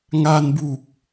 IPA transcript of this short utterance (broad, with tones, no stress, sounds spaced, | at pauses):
ŋ a˧ n b u˨˩ k̚